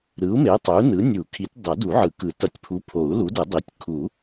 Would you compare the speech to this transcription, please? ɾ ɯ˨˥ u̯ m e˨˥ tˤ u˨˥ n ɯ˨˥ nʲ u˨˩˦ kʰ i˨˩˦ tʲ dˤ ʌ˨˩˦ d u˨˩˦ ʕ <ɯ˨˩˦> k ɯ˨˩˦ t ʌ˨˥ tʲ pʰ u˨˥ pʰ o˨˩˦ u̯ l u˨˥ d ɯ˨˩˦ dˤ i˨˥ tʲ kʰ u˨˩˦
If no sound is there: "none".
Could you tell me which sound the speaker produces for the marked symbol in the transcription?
ɯ˨˩˦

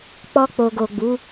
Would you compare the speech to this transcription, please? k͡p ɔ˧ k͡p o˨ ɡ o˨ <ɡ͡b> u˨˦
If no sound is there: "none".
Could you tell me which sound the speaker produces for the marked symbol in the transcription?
ɡ͡b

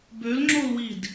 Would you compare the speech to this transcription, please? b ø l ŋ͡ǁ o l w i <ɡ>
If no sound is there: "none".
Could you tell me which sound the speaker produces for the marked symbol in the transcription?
d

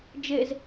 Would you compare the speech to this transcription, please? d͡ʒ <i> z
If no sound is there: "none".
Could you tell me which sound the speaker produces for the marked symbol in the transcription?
e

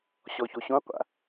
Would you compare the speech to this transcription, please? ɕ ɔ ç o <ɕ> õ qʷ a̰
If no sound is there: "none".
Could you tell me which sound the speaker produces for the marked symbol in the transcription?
ɕ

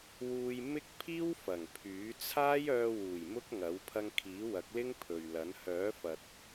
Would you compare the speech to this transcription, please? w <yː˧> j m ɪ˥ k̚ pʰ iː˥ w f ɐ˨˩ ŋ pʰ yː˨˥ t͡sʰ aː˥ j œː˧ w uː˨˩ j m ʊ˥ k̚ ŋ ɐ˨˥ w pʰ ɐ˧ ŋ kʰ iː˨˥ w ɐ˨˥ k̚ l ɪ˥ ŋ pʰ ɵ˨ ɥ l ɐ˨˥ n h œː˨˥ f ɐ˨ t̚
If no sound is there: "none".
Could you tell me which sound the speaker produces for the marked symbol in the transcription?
uː˧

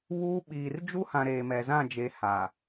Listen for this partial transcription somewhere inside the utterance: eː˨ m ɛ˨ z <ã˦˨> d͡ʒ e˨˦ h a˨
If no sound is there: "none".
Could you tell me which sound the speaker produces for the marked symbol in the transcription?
ã˦˨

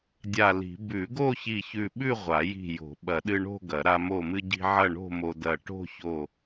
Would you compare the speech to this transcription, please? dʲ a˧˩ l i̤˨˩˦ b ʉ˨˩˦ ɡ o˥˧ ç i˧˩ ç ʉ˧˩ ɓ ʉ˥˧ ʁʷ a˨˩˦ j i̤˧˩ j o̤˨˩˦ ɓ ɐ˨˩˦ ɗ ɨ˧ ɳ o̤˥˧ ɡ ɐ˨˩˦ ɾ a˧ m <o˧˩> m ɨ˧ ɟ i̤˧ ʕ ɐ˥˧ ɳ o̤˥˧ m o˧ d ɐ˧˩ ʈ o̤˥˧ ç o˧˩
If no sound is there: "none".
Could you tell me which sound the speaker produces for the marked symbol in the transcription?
o˧˩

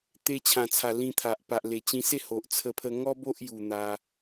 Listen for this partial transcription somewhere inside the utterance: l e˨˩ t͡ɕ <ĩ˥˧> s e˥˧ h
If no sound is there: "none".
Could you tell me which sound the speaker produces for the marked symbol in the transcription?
ĩ˧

